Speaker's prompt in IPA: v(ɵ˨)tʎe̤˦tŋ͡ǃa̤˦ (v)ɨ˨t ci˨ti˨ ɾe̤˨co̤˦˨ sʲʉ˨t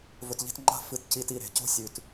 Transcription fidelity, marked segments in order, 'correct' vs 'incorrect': correct, incorrect: f

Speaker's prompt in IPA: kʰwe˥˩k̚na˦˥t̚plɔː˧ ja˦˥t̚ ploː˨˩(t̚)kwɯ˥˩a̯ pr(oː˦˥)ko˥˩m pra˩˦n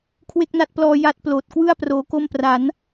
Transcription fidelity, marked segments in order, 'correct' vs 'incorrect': correct, correct

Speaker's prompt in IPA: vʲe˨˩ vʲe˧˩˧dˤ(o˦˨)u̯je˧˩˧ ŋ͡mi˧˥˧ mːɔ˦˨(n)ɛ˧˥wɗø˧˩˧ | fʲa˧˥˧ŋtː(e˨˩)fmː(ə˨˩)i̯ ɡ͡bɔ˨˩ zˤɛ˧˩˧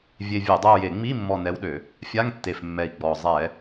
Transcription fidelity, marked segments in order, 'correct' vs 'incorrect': correct, correct, correct, incorrect: ɛ˨˩

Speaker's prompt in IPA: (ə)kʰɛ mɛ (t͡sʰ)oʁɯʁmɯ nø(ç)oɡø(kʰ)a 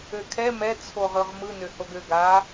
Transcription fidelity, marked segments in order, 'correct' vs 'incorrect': incorrect: ø, correct, incorrect: h, incorrect: ɡ

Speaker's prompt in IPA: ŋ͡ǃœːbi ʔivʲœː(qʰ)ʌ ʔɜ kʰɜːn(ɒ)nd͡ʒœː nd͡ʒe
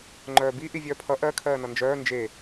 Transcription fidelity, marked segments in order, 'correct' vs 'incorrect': incorrect: pʰ, incorrect: ʌ

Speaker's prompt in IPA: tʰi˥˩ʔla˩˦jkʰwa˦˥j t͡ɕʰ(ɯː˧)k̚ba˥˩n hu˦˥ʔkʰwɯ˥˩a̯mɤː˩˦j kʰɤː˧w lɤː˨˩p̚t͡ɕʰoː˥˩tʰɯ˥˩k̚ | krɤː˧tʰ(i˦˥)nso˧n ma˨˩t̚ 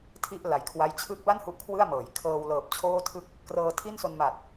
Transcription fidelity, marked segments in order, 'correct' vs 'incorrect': incorrect: ɯː˦˥, incorrect: i˥˩

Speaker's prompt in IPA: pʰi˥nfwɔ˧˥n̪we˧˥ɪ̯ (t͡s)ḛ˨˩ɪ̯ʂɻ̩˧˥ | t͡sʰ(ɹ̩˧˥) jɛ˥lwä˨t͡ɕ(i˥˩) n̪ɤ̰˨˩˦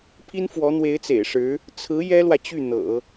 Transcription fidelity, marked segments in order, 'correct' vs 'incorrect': correct, correct, incorrect: y˥˩

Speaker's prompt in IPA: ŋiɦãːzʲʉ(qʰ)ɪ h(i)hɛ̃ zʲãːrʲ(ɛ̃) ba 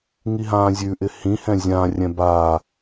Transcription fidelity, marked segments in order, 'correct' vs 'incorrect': incorrect: ʔ, incorrect: ĩ, correct

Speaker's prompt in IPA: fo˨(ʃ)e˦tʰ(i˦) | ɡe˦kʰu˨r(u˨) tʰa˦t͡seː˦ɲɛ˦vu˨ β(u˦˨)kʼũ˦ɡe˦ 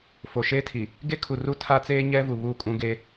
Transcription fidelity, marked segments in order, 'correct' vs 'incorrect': correct, incorrect: i˨, incorrect: u˦, correct

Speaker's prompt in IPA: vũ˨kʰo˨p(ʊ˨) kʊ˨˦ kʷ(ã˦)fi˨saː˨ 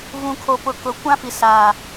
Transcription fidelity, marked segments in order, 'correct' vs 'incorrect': correct, correct

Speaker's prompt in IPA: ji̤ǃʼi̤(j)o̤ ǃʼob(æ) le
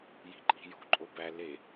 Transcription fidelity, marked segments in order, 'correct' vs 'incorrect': correct, correct

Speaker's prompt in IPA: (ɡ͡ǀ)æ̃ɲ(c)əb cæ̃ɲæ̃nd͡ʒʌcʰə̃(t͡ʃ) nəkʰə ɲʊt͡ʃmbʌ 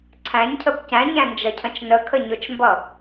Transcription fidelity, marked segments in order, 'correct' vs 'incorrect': incorrect: ǀʰ, incorrect: cʰ, correct

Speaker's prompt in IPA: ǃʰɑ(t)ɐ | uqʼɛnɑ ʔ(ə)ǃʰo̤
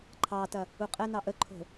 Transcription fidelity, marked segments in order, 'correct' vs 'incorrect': correct, correct

